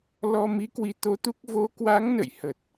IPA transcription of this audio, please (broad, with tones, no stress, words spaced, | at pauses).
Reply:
lɔ˧ mi˨˦kwi˨˦t̪o˨˦ t̪u˦˥k̚ vo˨˦kwa˨˦ŋnə̰˧˨j hə˨˩t̚